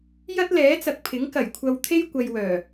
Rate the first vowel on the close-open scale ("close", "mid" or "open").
open